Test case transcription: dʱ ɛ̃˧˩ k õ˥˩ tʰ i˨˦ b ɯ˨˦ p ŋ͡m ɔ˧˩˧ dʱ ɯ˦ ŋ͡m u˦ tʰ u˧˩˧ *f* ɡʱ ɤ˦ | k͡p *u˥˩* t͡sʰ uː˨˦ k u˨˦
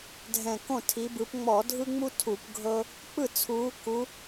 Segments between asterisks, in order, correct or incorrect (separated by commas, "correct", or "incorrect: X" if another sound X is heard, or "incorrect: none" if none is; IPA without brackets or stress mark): incorrect: p, incorrect: ɯ˥˩